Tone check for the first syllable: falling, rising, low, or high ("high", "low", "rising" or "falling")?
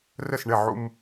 falling